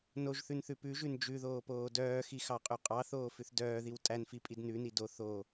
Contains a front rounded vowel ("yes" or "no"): yes